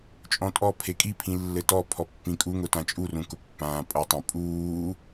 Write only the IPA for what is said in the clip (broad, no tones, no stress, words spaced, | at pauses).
t͡ʃʼɔ̃tʼɔpʰe kʼipʰĩ lːɘtɔpʰɔ pːĩkʼuŋʊ tãt͡ʃʼurũ kʊpːãːpʼɤtˤẽ pʼuː